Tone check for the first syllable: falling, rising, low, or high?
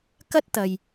high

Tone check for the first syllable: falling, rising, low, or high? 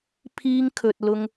high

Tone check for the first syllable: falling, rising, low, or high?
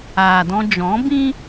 low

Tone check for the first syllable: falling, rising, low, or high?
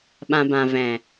low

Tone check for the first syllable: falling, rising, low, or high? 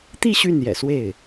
falling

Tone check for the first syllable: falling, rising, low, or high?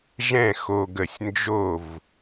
falling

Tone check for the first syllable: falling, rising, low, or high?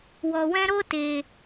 low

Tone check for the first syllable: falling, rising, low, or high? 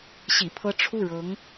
low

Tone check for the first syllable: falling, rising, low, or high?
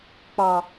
low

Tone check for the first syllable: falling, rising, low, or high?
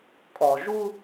low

